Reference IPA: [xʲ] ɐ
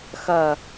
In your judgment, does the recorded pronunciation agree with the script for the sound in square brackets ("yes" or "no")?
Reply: no